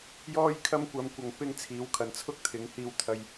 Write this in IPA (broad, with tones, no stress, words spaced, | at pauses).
jɔː˥jkʰɐ˥mkʷɐ˨˧m kʷɐ˨ŋpɪ˥ŋt͡sʰiː˨˥wkʰɐ˨n t͡sʰʊ˥k̚t̪ʰɪ˨˥ŋ hiː˧wt̪ʰɐ˧j